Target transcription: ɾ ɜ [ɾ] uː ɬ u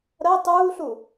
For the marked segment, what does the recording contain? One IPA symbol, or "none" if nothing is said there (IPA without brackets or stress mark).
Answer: tˤ